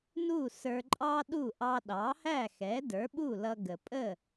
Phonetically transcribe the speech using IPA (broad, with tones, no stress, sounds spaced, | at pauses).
n u˥˩ s ə˞˧ ǃʼ ɑ˥ ɗ u˥˩ ʔ ɑ˧ ɗ ɑ˩˥ h æ˥˩ x ɛ˩˥ d ə˞˩˥ ɓ u˥˩ l ʌ˧ ɡ ə˩ pʼ ə˥˩